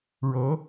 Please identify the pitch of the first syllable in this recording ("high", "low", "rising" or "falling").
rising